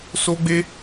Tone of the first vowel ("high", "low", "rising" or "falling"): high